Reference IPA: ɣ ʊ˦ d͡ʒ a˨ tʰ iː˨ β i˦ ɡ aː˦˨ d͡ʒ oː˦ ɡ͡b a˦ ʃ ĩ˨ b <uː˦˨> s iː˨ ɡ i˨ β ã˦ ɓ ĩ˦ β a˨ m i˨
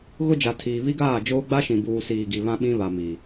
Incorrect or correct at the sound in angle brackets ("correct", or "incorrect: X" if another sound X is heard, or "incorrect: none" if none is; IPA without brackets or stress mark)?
incorrect: uː˨